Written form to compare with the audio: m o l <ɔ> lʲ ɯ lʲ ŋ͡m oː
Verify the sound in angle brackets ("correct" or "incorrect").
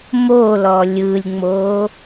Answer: correct